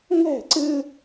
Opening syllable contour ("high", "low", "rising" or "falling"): falling